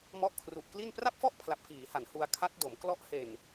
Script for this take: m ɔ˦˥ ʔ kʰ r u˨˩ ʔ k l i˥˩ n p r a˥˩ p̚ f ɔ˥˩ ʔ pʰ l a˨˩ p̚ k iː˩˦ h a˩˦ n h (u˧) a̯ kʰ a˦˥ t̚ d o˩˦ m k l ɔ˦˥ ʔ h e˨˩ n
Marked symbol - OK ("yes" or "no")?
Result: yes